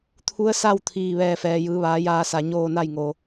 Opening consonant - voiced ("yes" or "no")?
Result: no